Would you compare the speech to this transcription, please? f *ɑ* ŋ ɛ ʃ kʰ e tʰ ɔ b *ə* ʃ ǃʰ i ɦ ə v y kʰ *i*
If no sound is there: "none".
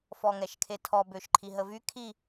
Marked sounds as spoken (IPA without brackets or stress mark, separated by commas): ɔ, ø, i